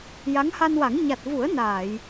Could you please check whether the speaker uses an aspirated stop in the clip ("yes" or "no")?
no